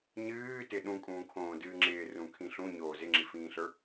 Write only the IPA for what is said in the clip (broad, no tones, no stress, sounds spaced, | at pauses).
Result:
ɲ ɨː t ɪ ɗ ũ kʼ ũː kʰ õː d ɨː ŋ͡ǁ ɪː r ũ kʰ ĩ ɬ ũ ɲ oː z ɪ ŋ͡ǁ i f ĩː ɬ ə˞